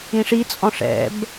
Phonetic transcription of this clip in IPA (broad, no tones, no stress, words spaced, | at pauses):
ĩʂit͡sʼɔ̃ ʂɛ̰b